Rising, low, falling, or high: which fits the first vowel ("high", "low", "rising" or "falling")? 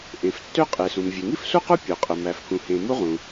low